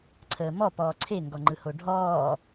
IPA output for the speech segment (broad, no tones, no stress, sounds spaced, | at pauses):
ǀʰ əː m ɔ p ɔː ǀʰ e ŋ ɡ ɔ ŋ͡ǃ ɯ h o ɖʱ ɔː